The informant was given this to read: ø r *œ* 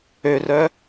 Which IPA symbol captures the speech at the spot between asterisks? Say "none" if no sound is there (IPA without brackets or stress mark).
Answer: œ